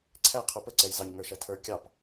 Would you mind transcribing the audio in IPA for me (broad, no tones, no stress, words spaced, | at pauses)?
ǀʰæ qʰupə ǀɛjzɑɲ ŋə˞ʃætʰə˞ kʲɑp